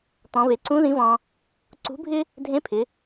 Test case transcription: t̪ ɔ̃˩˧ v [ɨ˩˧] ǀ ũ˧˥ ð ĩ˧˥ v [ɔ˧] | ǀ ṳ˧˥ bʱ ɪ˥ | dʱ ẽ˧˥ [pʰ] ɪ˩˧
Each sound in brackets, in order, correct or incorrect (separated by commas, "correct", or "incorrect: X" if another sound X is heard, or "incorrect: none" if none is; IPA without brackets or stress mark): incorrect: e˩˧, incorrect: ɔ̃˧, correct